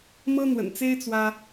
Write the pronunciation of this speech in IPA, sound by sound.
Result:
m ɤ˦ n̪ w ə̰˨˩ n t͡s e˦ ɪ̯ t͡s w ä˦

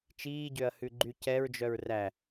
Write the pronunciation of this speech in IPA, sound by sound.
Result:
t͡ʃ iː ɟ ø ɐ̯ h ʉ ɡ͡ǃ y c ɛ ɹ d͡ʒ œ ɹ r æ

